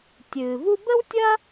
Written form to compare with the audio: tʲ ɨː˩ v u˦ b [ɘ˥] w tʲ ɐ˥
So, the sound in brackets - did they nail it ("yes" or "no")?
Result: yes